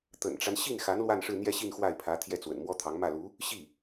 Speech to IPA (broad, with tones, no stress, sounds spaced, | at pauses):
t̪ ə̰˨˩ n ʈ͡ʂ a˦ n ɕ i˥˩ n x a˧˥ n l w a˥˧ n ʂ ɻ̩˥˧ n̪ j ɛ˥˧ ɕ i˥˧ n x w a˥˩ ɪ̯ pʰ ä˧˥ t̪ʰ j ɛ˥˩ t͡s w ə̰˨˩ n m w ɔ˥ t̪ʰ ɑ˧˥ ŋ m ä˥˩ l u˧˥ | ɕ i˥˩